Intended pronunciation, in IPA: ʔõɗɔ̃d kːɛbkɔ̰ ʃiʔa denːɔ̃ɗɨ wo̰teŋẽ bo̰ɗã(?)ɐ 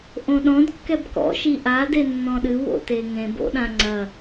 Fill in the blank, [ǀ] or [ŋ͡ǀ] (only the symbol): ŋ͡ǀ